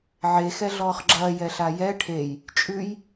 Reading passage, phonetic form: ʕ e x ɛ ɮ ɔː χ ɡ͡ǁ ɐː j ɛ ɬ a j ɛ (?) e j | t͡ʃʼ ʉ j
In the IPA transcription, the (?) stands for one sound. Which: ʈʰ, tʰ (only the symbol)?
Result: ʈʰ